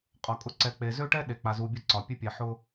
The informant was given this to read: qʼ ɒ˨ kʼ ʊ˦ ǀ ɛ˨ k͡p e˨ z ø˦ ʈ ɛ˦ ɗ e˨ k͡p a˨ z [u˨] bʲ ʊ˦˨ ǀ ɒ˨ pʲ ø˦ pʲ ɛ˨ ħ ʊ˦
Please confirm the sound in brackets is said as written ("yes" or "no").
yes